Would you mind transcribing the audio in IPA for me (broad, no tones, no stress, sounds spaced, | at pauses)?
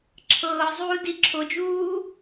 ǁʰ ɤː zˤ uː d i ǁʰ o d͡ʒ uː